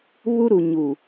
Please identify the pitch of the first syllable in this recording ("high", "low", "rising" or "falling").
high